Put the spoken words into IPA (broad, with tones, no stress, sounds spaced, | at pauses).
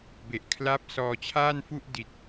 b e˨˩ ʔ kʰ l a˦˥ p̚ s ɔː˧ t͡ɕʰ aː˥˩ n f u˥˩ ʔ d i˨˩ t̚